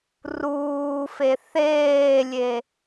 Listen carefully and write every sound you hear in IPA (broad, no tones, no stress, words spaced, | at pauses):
ruːfe θeːlʲe